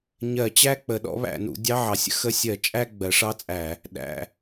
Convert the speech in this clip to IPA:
ɲ ɜ˧˩˧ t͡ɕ æ˥˧ k͡p ə˧˩˧ ɗ ɔ̰˦˥ β æ̰˧˩˧ n ṵ˩˥ dʲ ɑ˧˥˧ ʕ ɑ˩˥ sʲ ə̰˩˥ x ə˦˥ sʲ ɜ˧˩˧ t͡ʃʼ æ˥˧ ɡ͡b ɜ˩˥ ʂ ɑ˧˥˧ t͡sʼ æ˧˩˧ | ɗ æ̰˩˧˩

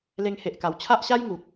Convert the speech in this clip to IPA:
l e˧ ŋ h e˨ ʔ k a˨˩ w t͡ɕʰ a˦ ʔ ɕ a˦ j ŋ u˨ k̚

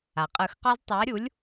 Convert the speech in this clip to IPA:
a˩ qʼ ɯ˨˩˦ x q ɔ˦ z tˤ a˨˥ ɾʲ u˨˥ lʲ

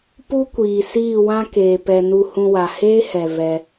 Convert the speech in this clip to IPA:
p u˦ kʷ iː˨ s iː˦˨ w ã˦ k eː˨ p ɛ˨ n u˧ h ũ˧ w a˨ h eː˦ h ɛ˨ v ɛ˧

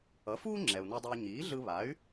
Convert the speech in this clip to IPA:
ʌ˩˥ f uː˥ ŋ͡ǁ ɛ˩ u̯ n a˧ dˤ e˧ y̯ ɲ iː˩˥ ɮ ɯ˧ β a˩˥ y̯

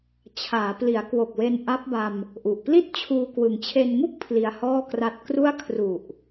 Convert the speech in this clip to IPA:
t͡ɕʰ aː˩˦ p l i˩˦ a̯ k w o˨˩ k̚ w e˧ n ʔ a˦˥ p̚ b a˧ m | ʔ u˨˩ ʔ p l i˥˩ t̚ t͡ɕʰ uː˧ k w ɯ˩˦ ŋ t͡ɕʰ e˧ n ŋ u˥˩ k̚ pʰ l i˧ a̯ h ɔː˥˩ k r a˦˥ t̚ k r u˥˩ a̯ kʰ r u˨˩ ʔ

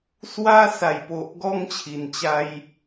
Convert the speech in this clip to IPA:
s w a˧ s a˨˩ j p o˨ ʔ ɡ ɔ˧ ŋ t͡ɕʰ i˨˩ n t͡ɕ a˧ j

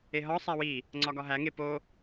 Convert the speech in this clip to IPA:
e ɦ ɒ sˤ æ w i | ŋ͡ǀ ɒ ɡ ɒ ɦ æ ŋ e p o

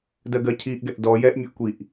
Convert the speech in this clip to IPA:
d ɜ ɡ ɜ cʰ i ʔ ɡ ɛ ʔ d ɔ j ɛ ʔ mʲ ɵ ʔ kʷ i ʔ

